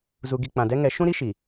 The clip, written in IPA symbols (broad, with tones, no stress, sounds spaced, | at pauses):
z u˨ ɡ i˨ k͡p ã˨ d ɛ˦ ŋ ɛ˨˦ ʃ ũ˦ ɾ i˦ ʃ i˨